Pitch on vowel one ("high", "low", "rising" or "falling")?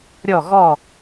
falling